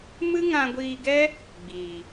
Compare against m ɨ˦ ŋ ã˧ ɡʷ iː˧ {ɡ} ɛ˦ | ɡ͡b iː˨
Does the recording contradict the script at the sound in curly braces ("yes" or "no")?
no